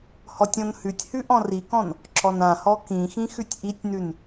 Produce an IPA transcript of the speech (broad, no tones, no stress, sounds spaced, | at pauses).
h ɔ tʲ ɔ̃ n h ʉ tʲ h ʉ ʔ ɔ̃ r i k ɔ̃ n | ǁ ɔ n ã h ɔ k ĩ x ĩ x ʉ tʲ ʔ i tʲ n ʉ n